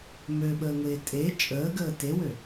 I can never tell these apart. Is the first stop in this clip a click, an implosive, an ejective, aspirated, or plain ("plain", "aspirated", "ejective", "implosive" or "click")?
implosive